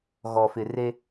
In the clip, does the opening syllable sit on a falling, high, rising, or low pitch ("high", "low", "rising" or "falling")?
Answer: low